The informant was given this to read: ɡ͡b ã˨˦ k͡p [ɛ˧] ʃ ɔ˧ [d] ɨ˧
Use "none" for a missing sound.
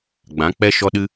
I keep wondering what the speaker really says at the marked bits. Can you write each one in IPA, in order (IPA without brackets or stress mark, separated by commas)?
ɛ˧, ɗ